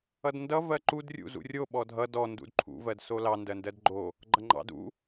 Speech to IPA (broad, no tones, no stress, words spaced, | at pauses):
ʌdndʌ vɜǃud rʲṵzṵrʲo ɓɔdʱʌ dɔ ndṵdǃʰṵ vɜdsolɑ ndɜndɜdɡ͡ǃo | ɡ͡ǃʌŋ͡ǃɑ̰ dṵ